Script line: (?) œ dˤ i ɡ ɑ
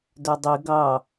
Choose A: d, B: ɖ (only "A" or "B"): A